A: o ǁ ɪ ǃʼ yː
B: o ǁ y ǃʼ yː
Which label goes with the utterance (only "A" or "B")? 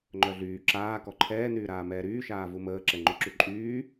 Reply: B